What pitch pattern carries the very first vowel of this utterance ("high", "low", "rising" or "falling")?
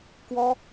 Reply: high